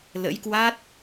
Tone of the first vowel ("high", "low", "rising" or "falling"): rising